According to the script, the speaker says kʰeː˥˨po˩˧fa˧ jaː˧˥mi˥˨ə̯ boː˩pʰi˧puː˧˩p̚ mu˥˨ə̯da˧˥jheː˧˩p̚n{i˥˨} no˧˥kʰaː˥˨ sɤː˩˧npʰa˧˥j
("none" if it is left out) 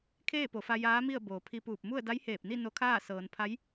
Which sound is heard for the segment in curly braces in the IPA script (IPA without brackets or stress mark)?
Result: i˥˨